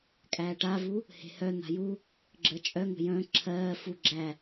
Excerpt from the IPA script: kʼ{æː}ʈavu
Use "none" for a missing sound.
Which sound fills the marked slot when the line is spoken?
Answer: æː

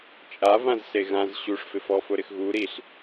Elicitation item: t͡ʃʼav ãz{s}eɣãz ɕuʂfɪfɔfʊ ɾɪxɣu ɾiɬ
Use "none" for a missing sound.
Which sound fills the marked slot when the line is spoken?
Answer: s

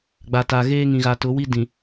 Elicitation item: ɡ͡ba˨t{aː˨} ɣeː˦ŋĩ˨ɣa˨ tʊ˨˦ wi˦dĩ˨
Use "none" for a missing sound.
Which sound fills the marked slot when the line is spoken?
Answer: a˨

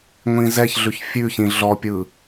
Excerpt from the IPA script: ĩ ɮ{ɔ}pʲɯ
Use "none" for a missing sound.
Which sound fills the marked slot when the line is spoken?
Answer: ɔ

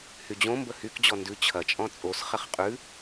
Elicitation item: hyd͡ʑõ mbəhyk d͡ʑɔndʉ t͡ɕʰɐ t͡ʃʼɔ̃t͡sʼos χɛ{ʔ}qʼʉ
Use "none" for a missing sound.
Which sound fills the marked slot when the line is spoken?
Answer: χ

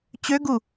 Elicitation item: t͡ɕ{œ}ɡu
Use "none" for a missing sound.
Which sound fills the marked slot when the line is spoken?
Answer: ø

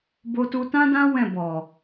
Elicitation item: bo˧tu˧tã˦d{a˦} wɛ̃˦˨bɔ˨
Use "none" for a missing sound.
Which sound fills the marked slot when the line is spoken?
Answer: ã˦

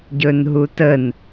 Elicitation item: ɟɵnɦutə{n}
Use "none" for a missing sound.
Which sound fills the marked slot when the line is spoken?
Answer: n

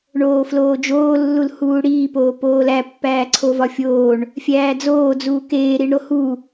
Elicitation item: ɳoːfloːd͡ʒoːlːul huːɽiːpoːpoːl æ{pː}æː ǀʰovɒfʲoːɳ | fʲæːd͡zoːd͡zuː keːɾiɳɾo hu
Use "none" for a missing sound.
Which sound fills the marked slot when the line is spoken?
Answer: pː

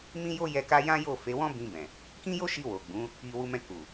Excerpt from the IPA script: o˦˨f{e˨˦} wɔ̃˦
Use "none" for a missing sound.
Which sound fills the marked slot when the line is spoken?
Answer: e˨˦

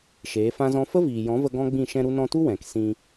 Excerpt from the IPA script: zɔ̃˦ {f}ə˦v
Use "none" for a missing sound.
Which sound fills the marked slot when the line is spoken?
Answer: f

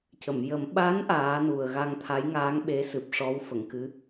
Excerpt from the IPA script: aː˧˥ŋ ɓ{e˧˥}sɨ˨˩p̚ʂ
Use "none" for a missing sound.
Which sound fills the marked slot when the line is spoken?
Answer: e˧˥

